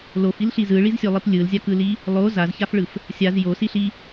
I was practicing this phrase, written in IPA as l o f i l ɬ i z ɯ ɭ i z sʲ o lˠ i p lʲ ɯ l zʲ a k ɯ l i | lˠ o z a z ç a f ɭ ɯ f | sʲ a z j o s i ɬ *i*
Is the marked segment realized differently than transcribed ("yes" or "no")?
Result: no